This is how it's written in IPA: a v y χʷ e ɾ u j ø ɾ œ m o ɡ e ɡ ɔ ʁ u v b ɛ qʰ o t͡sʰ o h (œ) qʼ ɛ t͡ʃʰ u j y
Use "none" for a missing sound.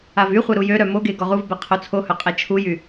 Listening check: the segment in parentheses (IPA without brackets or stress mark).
œ